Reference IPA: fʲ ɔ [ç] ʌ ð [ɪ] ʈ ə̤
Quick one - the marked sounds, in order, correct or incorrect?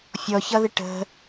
correct, correct

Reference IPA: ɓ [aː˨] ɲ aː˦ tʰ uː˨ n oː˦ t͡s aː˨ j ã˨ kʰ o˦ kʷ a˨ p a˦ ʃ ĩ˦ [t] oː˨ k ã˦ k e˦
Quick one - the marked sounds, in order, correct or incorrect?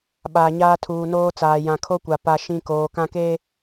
correct, incorrect

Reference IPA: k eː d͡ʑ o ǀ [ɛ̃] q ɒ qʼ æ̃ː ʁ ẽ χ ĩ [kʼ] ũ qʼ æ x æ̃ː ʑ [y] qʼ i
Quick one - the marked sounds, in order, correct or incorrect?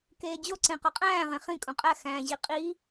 incorrect, correct, incorrect

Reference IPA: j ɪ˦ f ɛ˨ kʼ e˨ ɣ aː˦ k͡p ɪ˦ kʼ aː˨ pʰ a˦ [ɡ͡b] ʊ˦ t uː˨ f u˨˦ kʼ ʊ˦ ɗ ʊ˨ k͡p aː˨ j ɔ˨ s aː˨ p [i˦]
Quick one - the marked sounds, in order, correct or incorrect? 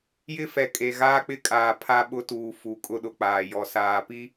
incorrect, correct

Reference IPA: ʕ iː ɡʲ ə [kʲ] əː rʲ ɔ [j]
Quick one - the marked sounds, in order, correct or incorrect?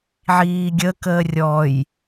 incorrect, correct

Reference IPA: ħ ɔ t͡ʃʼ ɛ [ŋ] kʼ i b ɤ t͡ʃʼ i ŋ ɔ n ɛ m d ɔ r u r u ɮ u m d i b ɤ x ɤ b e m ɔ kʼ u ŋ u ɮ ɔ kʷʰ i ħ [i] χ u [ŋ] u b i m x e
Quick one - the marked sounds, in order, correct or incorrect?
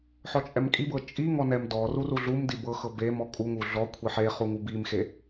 incorrect, incorrect, correct

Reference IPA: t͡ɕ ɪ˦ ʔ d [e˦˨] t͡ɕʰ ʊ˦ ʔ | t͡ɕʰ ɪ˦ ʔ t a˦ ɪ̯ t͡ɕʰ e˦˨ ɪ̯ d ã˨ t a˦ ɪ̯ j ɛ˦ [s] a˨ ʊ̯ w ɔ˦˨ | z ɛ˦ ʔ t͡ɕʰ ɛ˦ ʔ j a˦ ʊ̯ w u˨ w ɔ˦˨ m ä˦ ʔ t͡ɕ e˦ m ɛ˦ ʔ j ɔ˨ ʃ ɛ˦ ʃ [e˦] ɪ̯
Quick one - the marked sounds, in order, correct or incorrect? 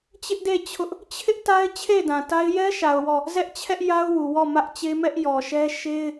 correct, incorrect, correct

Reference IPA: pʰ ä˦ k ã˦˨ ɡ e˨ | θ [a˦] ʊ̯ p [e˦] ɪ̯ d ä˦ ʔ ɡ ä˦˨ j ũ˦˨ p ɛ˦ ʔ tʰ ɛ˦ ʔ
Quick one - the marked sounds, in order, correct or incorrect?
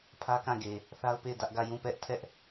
correct, incorrect

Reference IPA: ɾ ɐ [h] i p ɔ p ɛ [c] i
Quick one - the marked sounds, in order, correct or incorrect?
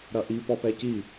incorrect, correct

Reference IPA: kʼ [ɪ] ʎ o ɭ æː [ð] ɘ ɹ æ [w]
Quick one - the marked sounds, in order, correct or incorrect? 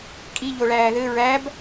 incorrect, correct, incorrect

